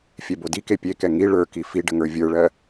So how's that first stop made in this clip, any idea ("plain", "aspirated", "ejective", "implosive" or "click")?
plain